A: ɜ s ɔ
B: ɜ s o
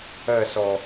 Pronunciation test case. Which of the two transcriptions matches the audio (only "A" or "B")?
A